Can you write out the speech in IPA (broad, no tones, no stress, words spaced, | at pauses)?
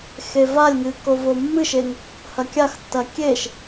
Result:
xevalʲŋɨ kovomːɨʃeŋ | hɐkʲaxtːɐ kʲeʃ